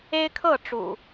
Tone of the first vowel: high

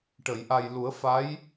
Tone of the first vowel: low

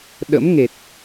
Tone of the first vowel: rising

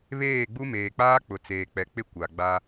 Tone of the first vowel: falling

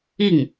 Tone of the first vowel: falling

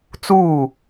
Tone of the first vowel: falling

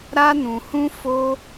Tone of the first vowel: high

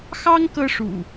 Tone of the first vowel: high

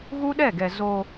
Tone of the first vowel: high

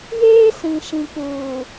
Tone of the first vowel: high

